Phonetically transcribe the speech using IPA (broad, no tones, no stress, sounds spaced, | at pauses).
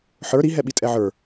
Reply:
ħ ə˞ ɾ i ɦ ɛ ɓ i tʼ ɛ ʕ ə˞